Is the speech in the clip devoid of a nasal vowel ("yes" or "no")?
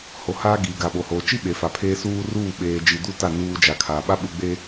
yes